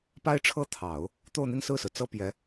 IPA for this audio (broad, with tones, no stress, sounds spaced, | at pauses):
p a˥ ɪ̯ ʈ͡ʂʰ ɤ˥ t̪ʰ ɑ˨˩˦ ʊ̯ | t̪ o˥˧ ʊ̯ n̪ i˥˧ n s ɹ̩˥˩ s ɹ̩˩ t͡s ɤ˥ p j ɛ˧˥